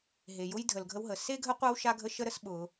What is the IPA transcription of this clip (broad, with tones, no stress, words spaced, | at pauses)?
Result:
ɦe˨jʊ˧j dʱə˨lɡʱə˧wɦə˨ se˦ɡʱə˦qʷa˦w ʃa˦ɡʱə˦ʃə˦ ɾə˦s ɓʊ˧